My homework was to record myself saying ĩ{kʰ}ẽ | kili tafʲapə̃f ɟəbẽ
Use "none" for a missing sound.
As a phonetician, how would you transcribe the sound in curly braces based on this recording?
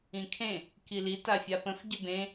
kʰ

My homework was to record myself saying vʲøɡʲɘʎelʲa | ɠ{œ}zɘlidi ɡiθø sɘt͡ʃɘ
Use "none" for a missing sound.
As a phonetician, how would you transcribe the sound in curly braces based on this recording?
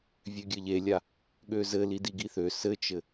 ø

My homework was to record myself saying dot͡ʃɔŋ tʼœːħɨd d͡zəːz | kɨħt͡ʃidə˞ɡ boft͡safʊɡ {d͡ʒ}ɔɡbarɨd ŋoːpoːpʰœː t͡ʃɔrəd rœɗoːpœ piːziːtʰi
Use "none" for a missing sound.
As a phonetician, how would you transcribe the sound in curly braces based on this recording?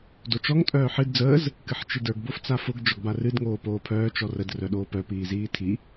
d͡ʒ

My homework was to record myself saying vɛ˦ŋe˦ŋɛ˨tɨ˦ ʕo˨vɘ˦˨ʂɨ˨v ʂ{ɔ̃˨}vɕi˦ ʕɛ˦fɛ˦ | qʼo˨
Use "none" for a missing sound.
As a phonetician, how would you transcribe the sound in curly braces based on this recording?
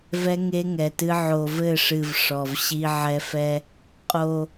ɔ˨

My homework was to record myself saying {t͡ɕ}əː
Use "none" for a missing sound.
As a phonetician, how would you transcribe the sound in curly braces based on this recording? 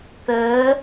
t̪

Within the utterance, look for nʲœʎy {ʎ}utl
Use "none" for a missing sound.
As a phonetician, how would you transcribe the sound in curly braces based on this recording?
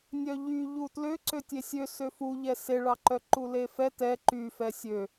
ʎ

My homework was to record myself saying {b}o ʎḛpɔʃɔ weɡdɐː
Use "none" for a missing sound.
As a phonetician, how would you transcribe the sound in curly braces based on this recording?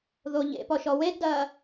ð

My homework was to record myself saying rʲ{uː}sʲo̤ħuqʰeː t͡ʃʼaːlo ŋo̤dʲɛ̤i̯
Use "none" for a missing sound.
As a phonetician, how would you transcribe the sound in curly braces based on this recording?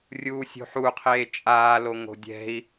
uː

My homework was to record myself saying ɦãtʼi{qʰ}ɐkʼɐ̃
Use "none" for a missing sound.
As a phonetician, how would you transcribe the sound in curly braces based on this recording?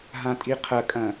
qʰ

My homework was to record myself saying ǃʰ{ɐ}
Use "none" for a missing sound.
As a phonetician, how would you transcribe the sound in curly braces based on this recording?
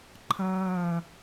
ɐː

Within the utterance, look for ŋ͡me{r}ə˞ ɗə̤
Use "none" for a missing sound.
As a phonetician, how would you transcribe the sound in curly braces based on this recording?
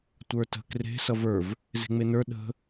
n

